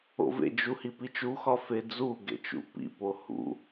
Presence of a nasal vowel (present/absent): absent